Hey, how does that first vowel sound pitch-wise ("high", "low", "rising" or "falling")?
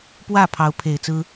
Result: falling